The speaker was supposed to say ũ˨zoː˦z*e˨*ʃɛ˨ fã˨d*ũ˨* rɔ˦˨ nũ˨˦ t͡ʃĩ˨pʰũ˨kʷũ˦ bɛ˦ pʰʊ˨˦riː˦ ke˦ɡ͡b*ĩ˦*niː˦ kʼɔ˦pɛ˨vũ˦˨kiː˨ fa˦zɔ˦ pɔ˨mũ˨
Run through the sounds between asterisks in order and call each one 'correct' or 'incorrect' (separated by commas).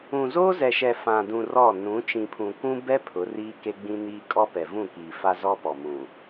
incorrect, correct, correct